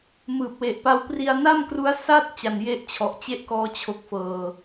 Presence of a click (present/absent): absent